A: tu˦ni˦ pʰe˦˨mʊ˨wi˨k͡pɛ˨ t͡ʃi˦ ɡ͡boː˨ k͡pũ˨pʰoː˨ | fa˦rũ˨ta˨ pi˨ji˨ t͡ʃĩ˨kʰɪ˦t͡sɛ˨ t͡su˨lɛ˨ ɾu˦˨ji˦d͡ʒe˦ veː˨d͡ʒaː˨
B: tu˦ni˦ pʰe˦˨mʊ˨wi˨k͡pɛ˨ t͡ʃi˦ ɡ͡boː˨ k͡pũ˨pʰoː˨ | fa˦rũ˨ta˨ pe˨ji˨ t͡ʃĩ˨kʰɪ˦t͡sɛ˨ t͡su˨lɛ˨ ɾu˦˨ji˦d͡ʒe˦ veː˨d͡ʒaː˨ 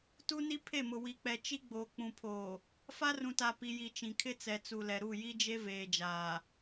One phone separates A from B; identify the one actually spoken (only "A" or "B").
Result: A